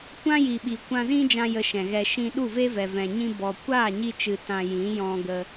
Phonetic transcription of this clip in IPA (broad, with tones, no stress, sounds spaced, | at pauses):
kʷ ã˦ j i˨ ɓ i˨ kʷ ã˧ z ĩ˦ d͡ʒ ã˧ j ə˧ ʃ ɛ̃˨ ɣ ɛ˧ ʃ ĩ˦ ɗ u˦˨ v e˦ v ɛ˨ v ɛ̃˨ ɲ ĩ˧ b ɔ˨ kʷ aː˦˨ ɲ i˧ t͡ʃ ɨ˨ t ã˧ j ĩ˨˦ j ɔ̃˧ ɡ ə˧